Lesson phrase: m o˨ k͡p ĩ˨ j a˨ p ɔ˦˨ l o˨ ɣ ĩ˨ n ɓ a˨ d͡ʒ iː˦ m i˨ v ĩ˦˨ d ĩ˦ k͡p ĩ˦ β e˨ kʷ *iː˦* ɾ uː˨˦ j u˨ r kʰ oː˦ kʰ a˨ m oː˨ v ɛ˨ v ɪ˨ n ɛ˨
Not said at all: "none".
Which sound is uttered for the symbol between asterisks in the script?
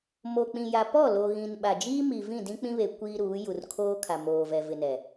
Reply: iː˦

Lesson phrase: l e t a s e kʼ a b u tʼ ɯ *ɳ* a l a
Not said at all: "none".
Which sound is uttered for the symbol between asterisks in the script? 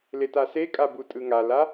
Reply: ŋ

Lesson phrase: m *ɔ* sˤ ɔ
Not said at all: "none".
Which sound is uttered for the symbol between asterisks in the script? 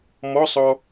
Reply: ɔ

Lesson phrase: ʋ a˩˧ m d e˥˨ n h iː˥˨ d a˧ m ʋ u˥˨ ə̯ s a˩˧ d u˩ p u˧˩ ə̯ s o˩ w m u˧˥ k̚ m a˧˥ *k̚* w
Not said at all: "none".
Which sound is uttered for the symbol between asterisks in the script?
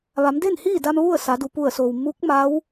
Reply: none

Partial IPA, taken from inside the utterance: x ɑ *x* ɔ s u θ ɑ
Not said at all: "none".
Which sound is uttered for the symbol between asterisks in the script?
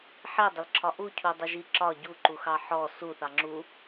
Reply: ħ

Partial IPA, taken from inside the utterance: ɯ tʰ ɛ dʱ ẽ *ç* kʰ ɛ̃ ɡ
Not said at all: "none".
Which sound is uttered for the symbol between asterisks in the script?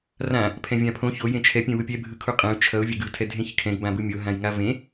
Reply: ç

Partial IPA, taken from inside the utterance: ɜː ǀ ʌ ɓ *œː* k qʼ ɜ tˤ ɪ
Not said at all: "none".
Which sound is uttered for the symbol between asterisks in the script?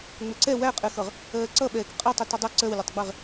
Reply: ɛː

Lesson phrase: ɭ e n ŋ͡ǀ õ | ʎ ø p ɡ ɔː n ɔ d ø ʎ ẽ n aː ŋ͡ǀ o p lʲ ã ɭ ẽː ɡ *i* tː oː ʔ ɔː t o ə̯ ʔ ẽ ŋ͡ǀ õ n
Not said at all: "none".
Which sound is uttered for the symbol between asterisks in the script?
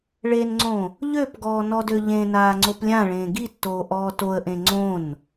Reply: i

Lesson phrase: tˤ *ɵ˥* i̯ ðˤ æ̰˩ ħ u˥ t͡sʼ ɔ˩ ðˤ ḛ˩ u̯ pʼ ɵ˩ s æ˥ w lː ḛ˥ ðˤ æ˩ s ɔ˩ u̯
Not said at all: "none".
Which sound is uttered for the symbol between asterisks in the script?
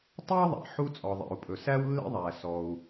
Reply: ɵ˥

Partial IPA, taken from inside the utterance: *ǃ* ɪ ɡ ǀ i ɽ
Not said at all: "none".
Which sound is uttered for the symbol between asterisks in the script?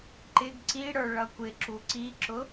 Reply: ǃ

